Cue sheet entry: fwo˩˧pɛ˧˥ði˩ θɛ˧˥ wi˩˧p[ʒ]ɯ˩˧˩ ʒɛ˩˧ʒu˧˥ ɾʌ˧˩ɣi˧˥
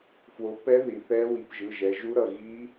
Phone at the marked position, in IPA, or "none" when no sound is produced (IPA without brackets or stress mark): ʒ